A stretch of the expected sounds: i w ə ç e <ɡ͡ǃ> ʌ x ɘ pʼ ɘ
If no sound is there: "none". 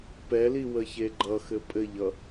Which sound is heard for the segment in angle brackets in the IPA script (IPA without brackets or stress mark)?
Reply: ɡ͡ǃ